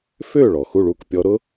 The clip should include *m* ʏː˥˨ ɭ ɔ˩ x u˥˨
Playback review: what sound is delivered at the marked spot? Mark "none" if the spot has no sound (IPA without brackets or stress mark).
f